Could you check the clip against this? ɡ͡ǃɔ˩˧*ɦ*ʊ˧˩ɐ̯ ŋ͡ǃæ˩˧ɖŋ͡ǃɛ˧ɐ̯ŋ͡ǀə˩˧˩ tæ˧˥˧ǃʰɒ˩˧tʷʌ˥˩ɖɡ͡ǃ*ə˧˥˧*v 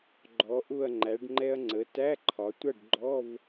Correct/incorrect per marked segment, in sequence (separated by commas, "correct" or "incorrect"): incorrect, incorrect